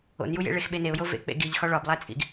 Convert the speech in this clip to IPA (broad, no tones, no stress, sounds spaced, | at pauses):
o̰ n j u j ḛ ɭ e x ɓ e n e ʊ̯ j o v ḛ k͡p ḛ ɡ i ʎ x ɒ ɭ ɒ b lˠ æ t͡sʼ ḭ ɡ